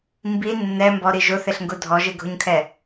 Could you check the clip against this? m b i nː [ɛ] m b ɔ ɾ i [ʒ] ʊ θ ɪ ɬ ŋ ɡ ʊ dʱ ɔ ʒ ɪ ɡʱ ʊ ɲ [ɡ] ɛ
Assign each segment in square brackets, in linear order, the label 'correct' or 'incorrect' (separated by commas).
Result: correct, correct, incorrect